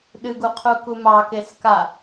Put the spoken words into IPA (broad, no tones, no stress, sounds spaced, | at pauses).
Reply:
ɗ ɨ ɡ u qʰ u k u m ɑ k e s k a